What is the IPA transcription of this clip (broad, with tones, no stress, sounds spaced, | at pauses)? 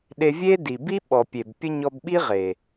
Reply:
ɗ e˧ vʲ e˦ d i˨ b i˦ ɓ ɔ˨ pʲ e˨ b pʲ ə˦ ɲ ɔ˧ b ɓ i˦ ʁ e˨